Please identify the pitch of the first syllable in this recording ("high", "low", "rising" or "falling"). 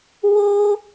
high